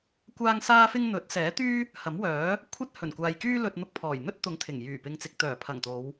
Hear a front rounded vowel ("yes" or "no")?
yes